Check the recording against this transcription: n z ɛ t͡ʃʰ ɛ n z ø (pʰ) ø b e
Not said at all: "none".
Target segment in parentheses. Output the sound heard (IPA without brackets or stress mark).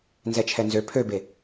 pʰ